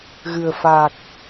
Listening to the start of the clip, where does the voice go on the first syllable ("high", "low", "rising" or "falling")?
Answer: low